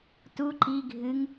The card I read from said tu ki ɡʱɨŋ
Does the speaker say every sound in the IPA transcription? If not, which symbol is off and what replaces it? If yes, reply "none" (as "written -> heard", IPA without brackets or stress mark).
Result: k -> ǃ